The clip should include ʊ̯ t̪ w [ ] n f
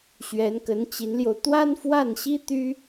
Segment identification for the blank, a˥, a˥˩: a˥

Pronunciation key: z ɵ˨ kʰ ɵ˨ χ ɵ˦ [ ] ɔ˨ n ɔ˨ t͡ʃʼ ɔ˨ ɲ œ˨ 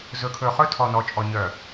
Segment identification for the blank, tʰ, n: tʰ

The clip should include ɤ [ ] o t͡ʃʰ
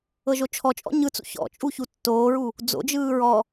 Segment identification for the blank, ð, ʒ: ʒ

